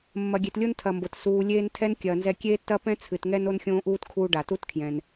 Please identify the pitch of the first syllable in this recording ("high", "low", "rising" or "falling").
low